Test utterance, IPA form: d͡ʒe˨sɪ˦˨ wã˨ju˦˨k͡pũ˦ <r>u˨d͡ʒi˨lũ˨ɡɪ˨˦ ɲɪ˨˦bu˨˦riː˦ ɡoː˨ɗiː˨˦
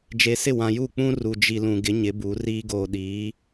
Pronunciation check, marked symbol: correct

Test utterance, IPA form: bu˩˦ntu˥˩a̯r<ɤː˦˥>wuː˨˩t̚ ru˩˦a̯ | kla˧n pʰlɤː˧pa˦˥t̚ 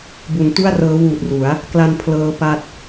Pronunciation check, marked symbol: correct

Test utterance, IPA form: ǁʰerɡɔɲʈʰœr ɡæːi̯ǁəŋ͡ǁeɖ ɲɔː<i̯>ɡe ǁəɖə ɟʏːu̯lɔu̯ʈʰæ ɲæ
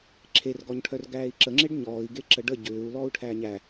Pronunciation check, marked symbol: correct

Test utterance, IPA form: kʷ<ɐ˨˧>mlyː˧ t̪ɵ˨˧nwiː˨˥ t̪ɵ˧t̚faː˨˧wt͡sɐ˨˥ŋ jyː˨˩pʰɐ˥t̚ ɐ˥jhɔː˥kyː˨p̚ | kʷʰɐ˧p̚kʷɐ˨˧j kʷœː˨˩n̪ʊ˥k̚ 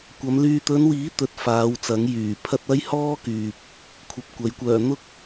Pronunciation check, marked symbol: correct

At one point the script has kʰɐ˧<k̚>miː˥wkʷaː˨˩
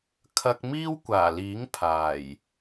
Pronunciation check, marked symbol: correct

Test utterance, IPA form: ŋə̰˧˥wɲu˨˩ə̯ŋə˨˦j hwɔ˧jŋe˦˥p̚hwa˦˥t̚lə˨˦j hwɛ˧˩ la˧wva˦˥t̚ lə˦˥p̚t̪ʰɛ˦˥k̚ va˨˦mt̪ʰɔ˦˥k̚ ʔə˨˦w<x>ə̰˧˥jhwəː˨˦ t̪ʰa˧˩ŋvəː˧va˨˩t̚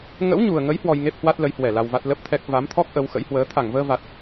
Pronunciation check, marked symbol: correct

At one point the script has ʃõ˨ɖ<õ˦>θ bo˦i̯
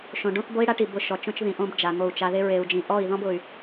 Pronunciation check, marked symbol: correct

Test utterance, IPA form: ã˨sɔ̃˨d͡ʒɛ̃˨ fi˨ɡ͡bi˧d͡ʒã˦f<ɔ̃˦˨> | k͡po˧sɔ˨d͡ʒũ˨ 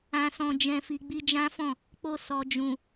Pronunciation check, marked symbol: correct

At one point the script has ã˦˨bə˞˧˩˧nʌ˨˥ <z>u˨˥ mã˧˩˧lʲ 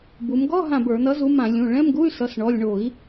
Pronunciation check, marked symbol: correct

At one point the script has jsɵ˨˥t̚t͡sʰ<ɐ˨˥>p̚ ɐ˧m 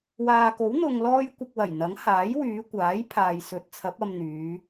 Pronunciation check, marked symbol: correct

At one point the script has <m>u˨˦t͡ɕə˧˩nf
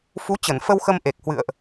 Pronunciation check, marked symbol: incorrect: f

